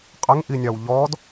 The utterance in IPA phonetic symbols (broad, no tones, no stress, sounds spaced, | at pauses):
qʼ ə ŋ ʔ i nʲ ɑ w ʎ ɔ d